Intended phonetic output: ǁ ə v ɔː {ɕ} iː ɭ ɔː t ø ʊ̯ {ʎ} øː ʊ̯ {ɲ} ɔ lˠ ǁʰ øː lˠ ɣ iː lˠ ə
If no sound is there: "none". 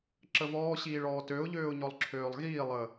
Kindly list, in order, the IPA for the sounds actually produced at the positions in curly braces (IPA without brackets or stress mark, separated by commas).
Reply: ɕ, ʎ, ɲ